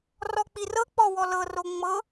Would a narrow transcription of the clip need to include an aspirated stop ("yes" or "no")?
no